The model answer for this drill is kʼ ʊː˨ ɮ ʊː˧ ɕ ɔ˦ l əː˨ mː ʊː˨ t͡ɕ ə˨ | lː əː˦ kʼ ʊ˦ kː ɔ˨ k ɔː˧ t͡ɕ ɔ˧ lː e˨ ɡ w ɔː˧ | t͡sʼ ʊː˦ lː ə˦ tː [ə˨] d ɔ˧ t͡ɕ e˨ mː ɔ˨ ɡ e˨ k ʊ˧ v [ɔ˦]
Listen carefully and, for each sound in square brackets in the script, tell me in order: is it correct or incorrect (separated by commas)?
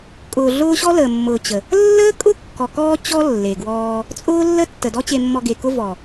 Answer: correct, incorrect